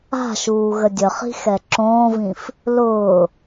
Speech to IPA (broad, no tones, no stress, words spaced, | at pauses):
a̤ʃuː ɣədʲəχi̤ xɛǁõːvĩf | lʊː